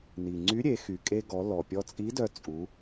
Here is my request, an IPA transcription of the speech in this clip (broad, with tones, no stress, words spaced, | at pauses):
ni˩ŋ͡ǀy˧˥ɾʲe˩˧ xy˩kʼe˧ɡɔ˩˧ lɔ˩pʲɔ˧t͡sʼi˧˥dœ˧ t͡sʼu˩˧